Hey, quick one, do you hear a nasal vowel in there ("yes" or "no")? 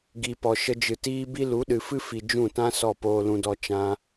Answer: yes